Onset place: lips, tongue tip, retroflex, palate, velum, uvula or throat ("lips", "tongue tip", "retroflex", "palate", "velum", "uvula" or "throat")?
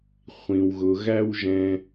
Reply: uvula